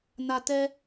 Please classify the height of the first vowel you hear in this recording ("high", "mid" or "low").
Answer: low